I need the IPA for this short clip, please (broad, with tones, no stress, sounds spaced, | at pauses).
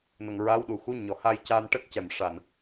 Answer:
n ə˨˩ ŋ ɹ a˧˥ w ɗ u˨˩˨ x u˧˥ ɲ ɔ˨˩˨ h a˧ j c aː˧ n ʈ ə˦˥ k̚ c ɛ˨˩ m ʂ a˨˩ n